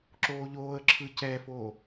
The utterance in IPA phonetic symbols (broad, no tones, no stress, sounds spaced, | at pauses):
ǁ oː ʎ oː ə̯ ǁʰ ɯ c ɛː f oː